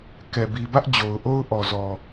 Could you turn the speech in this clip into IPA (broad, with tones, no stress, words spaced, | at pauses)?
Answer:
kɛ˨bi˨bä˦ʔ d͡ʑo˨ʊ̯ʔo˦ʊ̯ʔɔ˨zɔ˨